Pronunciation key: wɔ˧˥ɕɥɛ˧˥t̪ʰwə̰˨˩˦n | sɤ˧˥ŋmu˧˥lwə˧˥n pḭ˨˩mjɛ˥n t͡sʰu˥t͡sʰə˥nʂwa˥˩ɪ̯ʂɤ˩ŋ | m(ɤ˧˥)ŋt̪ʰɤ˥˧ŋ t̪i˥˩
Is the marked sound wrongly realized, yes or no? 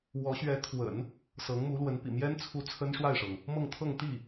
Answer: yes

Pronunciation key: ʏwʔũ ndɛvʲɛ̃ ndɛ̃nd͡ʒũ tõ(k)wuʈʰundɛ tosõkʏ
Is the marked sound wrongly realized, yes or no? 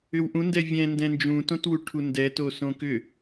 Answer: yes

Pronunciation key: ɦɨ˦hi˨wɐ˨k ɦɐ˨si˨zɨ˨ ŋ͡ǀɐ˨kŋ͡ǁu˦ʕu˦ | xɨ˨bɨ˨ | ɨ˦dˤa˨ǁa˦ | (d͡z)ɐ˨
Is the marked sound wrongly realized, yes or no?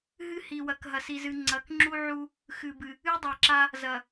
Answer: yes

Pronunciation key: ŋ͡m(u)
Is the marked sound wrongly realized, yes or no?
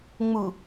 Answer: no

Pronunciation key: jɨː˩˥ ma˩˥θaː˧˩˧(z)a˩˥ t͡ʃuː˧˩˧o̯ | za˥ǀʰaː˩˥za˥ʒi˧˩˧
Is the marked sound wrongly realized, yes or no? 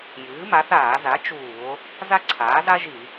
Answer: no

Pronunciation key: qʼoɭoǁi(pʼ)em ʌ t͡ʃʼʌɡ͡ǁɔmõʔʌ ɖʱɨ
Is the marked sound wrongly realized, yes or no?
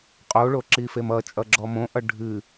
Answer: yes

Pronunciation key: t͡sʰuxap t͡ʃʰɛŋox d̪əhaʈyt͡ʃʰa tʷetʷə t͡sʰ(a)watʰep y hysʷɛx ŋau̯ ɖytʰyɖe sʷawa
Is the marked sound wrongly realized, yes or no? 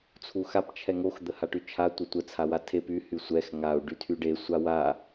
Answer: no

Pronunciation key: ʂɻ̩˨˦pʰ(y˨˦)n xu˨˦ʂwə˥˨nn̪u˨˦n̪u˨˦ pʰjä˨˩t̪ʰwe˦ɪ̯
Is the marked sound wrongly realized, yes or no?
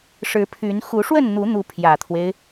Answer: no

